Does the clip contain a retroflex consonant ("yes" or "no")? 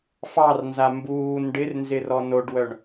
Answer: yes